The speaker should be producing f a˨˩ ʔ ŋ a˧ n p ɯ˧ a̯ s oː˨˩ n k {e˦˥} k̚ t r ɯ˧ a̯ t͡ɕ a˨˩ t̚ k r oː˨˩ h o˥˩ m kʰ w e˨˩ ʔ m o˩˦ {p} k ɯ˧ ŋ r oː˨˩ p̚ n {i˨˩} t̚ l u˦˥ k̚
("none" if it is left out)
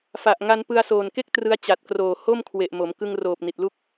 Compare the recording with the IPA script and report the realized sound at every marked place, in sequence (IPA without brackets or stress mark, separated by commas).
e˥˩, m, i˨˩